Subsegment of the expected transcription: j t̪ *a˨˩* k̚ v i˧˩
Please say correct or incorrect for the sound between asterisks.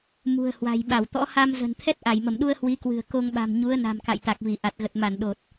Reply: correct